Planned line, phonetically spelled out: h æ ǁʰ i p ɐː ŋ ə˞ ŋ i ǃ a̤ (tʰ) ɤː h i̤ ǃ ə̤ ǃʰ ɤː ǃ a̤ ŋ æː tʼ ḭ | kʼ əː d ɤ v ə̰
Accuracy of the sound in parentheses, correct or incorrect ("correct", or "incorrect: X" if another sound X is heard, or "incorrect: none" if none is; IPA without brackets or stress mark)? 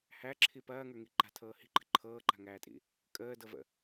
correct